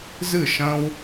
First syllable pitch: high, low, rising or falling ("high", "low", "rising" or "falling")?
falling